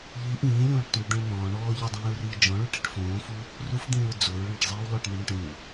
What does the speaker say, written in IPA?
ʎ i ʔ ĩː lʲ õː ʈ tˤ ə̃ d d̪ ẽ ɭ n̪ ɔ̃ː ɳ ɔː ʎ ə dˤ ĩː ɹ r iː d͡ʒ ɔ̃ ɭ u ʈ i ʈ f õː f u | r u f d̪ ĩː ɹ d͡z o ɹ ɭ ẽ ʈ zˤ iː w lˠ o ʈ n̪ ĩ ɳ õ ʈ ĩ w

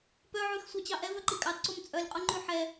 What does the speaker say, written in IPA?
p œ ʕ ʉ x sʷ ɑ t͡ɕ ɑ ʔ ɛ v œ ǃ i kʼ ɑ t ǀ o m t͡sʼ œ lʲ qʼ o ŋ͡ǃ ʉ ħ ɛ

